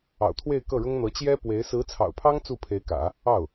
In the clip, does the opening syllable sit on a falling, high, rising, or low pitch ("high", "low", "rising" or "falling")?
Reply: low